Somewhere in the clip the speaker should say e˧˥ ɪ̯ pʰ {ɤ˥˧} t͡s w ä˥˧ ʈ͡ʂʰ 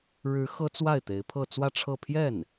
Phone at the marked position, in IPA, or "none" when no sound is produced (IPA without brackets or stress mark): ɤ˥˧